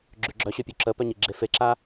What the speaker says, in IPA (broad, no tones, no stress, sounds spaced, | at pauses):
ɡ͡ǁ y ɡ͡ǁ œ ɕ ø pʲ u ǁ ə p œ ɲ i ɡ͡ǁ e f e ǁ a